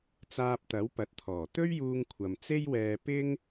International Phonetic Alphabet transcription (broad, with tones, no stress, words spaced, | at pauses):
t͡saː˧p̚t̪ɐ˨˥wpɐ˨t̚t̪ʰɔː˨˩ t̪ɵ˥ɥjuː˧ŋkʷʰɐ˨m t͡se˥jwɛː˧ pɪ˥ŋ